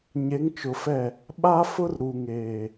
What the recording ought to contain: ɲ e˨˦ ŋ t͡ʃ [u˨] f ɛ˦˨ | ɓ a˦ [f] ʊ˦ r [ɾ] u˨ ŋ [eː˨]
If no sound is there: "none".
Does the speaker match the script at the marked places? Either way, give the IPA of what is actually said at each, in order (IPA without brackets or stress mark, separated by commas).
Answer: ʊ˨, f, ɾ, eː˨